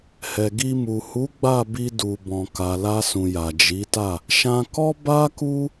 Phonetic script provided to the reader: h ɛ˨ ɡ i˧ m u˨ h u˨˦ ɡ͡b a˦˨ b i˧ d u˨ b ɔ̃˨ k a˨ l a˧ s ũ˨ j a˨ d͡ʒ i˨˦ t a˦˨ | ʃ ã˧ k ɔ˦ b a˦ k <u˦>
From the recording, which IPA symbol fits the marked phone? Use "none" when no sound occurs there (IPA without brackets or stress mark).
u˦